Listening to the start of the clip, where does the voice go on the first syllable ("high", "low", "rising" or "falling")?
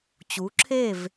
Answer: rising